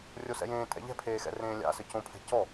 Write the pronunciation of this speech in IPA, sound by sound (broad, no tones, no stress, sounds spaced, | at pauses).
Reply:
rʲ o s ɛ̰ j ẽː tʼ ɛ̰ ʎ ɛ̤ pʰ eː x ɛ̰ r ẽː lʲ a̰ s ɘ c õ pʰ ɛ̤ c ɔ